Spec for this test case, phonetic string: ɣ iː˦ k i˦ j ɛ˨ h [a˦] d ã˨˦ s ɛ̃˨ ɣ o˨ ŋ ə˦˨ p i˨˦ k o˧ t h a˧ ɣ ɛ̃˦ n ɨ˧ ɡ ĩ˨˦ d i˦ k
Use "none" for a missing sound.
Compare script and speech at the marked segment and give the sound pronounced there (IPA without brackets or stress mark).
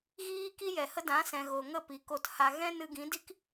ə˦